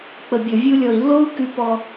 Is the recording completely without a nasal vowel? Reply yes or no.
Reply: yes